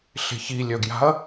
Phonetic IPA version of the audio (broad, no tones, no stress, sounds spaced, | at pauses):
ɬ e̤ ç i lʲ œ ɡ j a̤ ɐ̯